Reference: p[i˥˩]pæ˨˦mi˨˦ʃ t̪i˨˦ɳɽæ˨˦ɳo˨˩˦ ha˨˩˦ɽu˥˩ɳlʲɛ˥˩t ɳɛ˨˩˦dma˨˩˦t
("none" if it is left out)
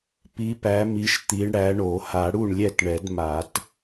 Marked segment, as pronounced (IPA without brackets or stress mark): i˨˦